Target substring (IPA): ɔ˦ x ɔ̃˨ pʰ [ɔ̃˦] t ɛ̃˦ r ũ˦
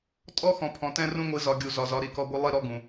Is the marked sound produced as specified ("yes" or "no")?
no